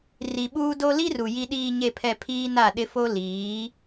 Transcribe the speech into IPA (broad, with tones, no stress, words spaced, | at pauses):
ri˨ɓuː˦do˦ li˦ru˨ ji˨ɗiː˨ɲe˨pʰɛ˨ pʰiː˦na˦˨ɗɪ˦fo˦ liː˨˦